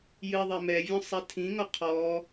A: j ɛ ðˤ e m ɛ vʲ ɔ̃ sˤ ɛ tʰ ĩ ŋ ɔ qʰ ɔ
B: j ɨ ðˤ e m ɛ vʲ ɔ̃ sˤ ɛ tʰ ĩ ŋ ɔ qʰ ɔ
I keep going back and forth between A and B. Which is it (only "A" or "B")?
B